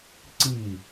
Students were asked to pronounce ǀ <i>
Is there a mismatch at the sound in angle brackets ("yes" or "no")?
no